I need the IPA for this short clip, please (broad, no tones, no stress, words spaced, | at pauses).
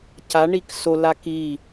caɳik sola ki